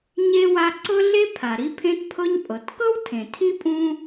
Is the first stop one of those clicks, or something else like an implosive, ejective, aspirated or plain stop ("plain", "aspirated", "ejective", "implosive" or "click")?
click